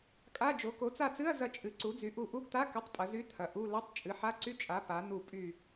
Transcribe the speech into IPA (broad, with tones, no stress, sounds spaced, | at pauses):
kʼ a˧˥˧ d͡ʒ o˩˥ k o˩˥ t͡s a˦˨ t͡s ɨ˧˥˧ ɐ̯ z ɐ˦˨ t͡ʃʼ ɨ˩˥ ǀ u˩˥ d͡z y˩˥ ʔ u˦˨ ʔ u˧˥˧ ɡ t̪ a˧˥˧ k ə˧˥˧ tˤ pʼ ɐ˩˥ z y˧˥˧ t̪ʰ ɐ˩˥ ʔ u˧˥˧ l ɐ˧˥˧ tˤ t͡ʃʼ ɨ˩˥ ħ a˧˥˧ ǀ y˧˥˧ t͡ʃʼ a˩˥ p a˩˥ n̪ u˦˨ pʼ y˦˨